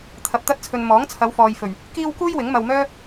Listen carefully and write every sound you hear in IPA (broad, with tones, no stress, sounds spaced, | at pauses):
t̪ʰ ɐ˧ p̚ t̪ ɐ˥ t̚ t͡sʰ ɵ˧ n m ɔː˨˥ ŋ t͡sʰ ɐ˨˧ w f ɔː˨ j f ɵ˨˩ ɥ | k iː˥ w k uː˥ j w ɪ˨˥ ŋ m ɐ˧ w m œː˥